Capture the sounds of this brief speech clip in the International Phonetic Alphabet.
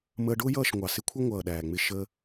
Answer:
məː˧ɖʊː˦jʌː˦˨ʃ ŋʷɑ˨sɪ˦kʷʰʌ˦ ŋʷʌː˨ɗæː˨ŋ͡mɪ˧ ʃə˧

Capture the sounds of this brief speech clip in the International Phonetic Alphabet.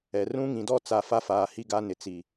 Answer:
ɛ˨ rũ˦ŋĩ˨dɔ˦t͡sa˨ fa˦faː˨hi˦ ɡa˦nɪ˨ t͡si˨

